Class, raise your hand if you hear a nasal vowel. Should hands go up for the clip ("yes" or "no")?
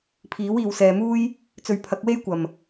no